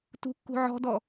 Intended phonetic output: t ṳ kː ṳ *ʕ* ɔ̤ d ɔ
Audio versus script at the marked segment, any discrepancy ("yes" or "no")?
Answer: no